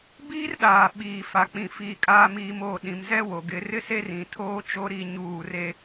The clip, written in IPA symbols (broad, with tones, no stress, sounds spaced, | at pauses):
b iː˦ r ɗ aː˨ ɓ iː˨ f a˨ k͡p ĩ˨ f iː˨ kʼ aː˨ m iː˨ m oː˨ ɗ ĩ˨ m z ɛ˦ w o˨ ɡ ɪ˨˦ r ɪ˦ s e˦ r ĩ˨ tʰ oː˦ t͡ʃ o˦ ɾ i˦˨ ɲ uː˦˨ r e˦